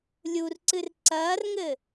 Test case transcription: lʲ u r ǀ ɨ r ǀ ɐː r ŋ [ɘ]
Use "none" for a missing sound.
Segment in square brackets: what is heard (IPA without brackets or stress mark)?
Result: ɘ